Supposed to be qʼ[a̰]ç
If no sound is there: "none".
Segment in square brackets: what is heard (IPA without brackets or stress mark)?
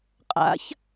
a̰